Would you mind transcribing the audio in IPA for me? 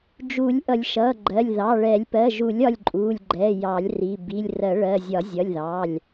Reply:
d͡ʒ u˨˩˦ lʲ ʔ ʌ˨˩˦ lʲ ʃ ʌ˩˧˩ ɡ͡ǃ ɜ˩˧˩ lʲ ð ɑ˩˧˩ ɭ ɛ˨˩˦ lʲ p ɜ˩˧˩ ʒ u˨˩˦ lʲ ɒ˩˧˩ lʲ ǃʼ u˩˧˩ lʲ ɡ͡ǃ ɛ˩˧˩ j ɑ˨˩˦ lʲ r i˩˧˩ b i˩˧˩ lʲ r ɜ˨˩˦ ɭ ɜ˩˧˩ zʲ ɒ˨˩˦ zʲ ʌ˩˧˩ lʲ ð ɑ˩˧˩ lʲ

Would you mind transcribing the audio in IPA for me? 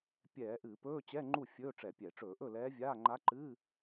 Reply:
pʲ ɛː˧˩˧ ʔ ɨː˧˩˧ p ɵː˧˥˧ t͡ɕ ɛ˧˥˧ ŋ͡ǃ u˥˩ fʲ ɵː˧˥˧ ʈ͡ʂ ɛ˧˩˧ pʲ ɛ˧˩˧ ʈ͡ʂ ɵː˧˩˧ ʔ ɵ˥˩ l ɛː˧˥ vʲ aː˧˥˧ ŋ͡ǃ a˧˥ ǃ ɨː˧˥˧

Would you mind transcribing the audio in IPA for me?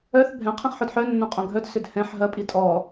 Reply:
œ θ bʱ ɛ̃ qʰ ĩ χ ħ o d ħ œ nː õ qʼ õ ɡʱ œ d s ʏ d h ɛ̃ ħ ɦ ɐ pʼ i tʼ ɔ

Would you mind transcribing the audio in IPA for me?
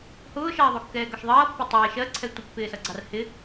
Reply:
h ʊː ʃ ʌː ðˤ u kː ɛː ɡ ɒ ʃ ðˤ ʌː pː ɛ tˤ ɪː ʃ ɜ ǀʰ ɛ tʷ ɪ pː ɪː s ʌ ɡ͡ǀ ɑ r h ɪ

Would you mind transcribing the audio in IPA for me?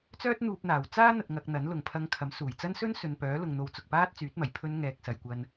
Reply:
t͡s œː˥ t̚ n̪ uː˧ p̚ n̪ aː˨˩ w t͡s aː˥ n̪ ɐ˧ t̚ ŋ ɐ˧ k̚ n̪ ɐ˨˥ n l ʊ˨˩ ŋ pʰ ɐ˨˧ ŋ kʰ ɐ˨˥ m s uː˨˩ j t͡s ɐ˥ n s ɵ˥ n s ɵ˨ n p œː˨˥ l ʊ˨ ŋ n̪ o˨˧ w t͡s ʊ˨ k̚ p aː˥ t̚ t͡s yː˨˥ t̚ m ɐ˨˩ j pʰ ɵ˧ n ŋ ɛː˨ k̚ s ɐ˨ j kʷ ɐ˧ n

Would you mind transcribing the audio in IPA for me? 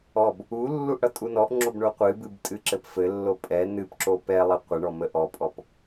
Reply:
ɔ b | u lː u ʔ ɽ ʌ tʼ u n ɔ ʔ ŋ͡ǁ o b ɳ o qʷ ɨ b ɨ b tʼ ɨ ǁ ɘ p f ɘ lː o pʼ ɛ n ɨ p ǁ o p ɛ lˠ ɘ qʷ ə ɳ ɔ m ə ʔ ɔ pʼ ɔ p

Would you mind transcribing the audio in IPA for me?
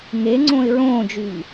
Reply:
ŋ e ŋ͡ǀ õ ɪ̯ ɹ õː d͡ʒ y ʎ

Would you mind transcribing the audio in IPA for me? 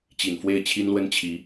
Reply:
t͡ɕ i˨˩ n f w e˥˩ ɪ̯ t͡ɕʰ i˥ n l w ə˥ n t͡ɕʰ i˧˥

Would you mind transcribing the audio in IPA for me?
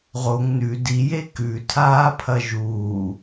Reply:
ʁ o ŋ n ʉ d i j e k ʉ tʰ aː pʰ ɐ ʒ uː

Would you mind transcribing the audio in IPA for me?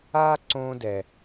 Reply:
aː˦ ǀ õː˧ d ɛ˨

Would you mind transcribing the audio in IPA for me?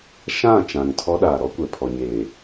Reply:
ʃ ã˦˨ t͡ʃ ã˨ ŋ tʰ ɔ˦ ɗ aː˨ ɾ ɔ˦ kʷ ɛ˨ pʰ ɔ˨ ɲ eː˨

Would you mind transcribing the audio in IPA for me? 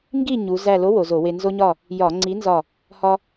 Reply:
ŋ ɡ i˥˨ ɲ u˩˧ z æ˧˩ l o˨˥ w o˩˧ z o˧˩˧ w e˧ n z o˧ ɲ ɒ˧˩ | j ɒ˧˩˧ ŋ͡ǀ i˨˥ n z ɒ˧˩ | h ɒ˧

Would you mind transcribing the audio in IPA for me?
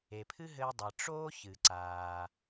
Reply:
e˩ pʰ ɨ˥ ɦ ɘː˧ dˤ ɘ˩ ʈ͡ʂ oː˥ ç ɨ˩ ǀ aː˩

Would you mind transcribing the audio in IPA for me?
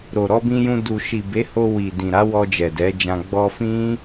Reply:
ɾ o˨ ɾ ɔ˧ b ĩ˧ j ũ˧ d u˨ ʃ i˨ b e˨˦ h o˧ w i˨ d ĩ˨ ɾ a˨˦ w ɔ˧ d͡ʒ ɛ˨ d ɛ˨˦ d͡ʒ ã˧ ɡ͡b ɔ˧ f ĩ˦

